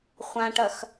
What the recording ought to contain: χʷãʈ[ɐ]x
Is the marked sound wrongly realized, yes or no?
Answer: no